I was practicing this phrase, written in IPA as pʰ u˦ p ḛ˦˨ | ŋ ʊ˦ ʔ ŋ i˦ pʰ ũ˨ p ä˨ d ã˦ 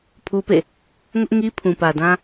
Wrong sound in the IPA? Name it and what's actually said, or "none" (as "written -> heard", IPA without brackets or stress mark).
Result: none